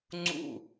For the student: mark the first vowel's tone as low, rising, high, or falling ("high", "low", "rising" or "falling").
falling